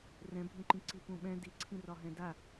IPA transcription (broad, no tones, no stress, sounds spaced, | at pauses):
r ɛ̃ bʱ ũ ǃ ĩ ǀ i p ũ ɓ ɛ̃ d i ǀʰ ĩ r ɒ ɦ ɛ̃ d a